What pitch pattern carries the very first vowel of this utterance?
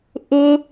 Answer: high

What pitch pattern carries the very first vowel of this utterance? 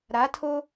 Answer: rising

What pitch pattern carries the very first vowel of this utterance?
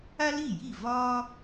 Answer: high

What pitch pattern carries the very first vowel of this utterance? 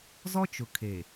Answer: high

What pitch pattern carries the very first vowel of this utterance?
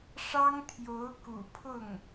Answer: high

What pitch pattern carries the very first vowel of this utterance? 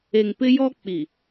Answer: low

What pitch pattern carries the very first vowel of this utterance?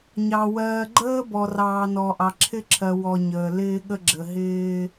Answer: low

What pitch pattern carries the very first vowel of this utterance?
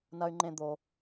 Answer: high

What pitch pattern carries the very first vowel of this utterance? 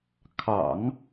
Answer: low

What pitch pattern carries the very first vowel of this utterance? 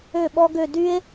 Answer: falling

